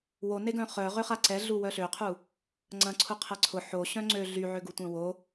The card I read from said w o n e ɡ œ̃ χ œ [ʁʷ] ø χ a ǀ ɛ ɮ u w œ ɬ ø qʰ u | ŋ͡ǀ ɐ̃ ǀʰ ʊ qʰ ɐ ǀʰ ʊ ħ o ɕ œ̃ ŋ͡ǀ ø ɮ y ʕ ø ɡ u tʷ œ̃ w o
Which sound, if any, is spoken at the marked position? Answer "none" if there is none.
ʁ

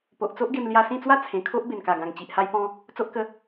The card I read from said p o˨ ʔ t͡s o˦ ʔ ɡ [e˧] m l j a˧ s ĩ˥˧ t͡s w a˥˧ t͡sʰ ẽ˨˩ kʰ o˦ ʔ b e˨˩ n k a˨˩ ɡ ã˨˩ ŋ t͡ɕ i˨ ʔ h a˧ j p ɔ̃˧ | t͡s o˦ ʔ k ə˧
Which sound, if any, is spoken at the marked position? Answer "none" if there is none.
e˧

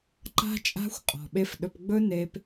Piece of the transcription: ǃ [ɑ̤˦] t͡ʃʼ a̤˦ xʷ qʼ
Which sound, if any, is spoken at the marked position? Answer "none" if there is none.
a̤˦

